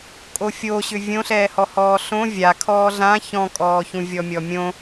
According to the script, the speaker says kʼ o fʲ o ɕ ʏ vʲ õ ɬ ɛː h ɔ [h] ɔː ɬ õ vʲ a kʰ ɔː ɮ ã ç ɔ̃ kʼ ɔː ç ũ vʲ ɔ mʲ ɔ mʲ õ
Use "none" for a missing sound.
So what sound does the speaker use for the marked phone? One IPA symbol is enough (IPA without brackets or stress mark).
h